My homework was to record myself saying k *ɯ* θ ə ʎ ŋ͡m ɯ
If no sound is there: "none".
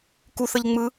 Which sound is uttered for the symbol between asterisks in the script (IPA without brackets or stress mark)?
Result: u